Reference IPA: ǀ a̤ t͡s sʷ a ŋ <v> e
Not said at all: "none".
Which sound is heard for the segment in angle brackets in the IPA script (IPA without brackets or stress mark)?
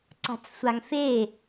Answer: f